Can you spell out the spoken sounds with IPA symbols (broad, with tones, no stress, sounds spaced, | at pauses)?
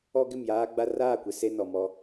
ɔ˦ ɡ ɪ˦˨ m j aː˦ ɡ͡b a˦ r aː˦˨ kʷ ɪ˨ s e˦ n ɔ˨ m ɔ˦